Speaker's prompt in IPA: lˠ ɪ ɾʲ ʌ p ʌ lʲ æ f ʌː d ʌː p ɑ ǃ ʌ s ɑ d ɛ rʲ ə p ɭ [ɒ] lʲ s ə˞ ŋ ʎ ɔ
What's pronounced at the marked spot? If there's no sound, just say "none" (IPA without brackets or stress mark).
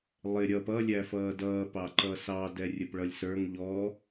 ʌ